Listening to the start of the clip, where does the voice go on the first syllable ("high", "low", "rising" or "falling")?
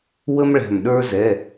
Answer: high